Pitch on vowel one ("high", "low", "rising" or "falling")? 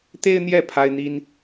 high